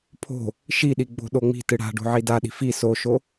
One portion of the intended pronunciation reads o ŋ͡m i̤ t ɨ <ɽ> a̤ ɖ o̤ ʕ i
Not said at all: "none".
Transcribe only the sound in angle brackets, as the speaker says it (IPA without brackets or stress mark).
ɽ